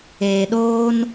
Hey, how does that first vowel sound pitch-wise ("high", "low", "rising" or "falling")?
low